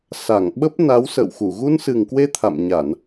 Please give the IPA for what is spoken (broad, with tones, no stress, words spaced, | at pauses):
sa˧˩ŋɓə˦˥p̚ na˨˦wsə̰˧˨wxu˧˩ ɣu˧nsɨ˨˩ŋkwe˧ t̪ʰa̰˧˨mɲa˧˩˨n